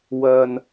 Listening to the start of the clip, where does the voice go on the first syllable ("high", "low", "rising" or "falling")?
low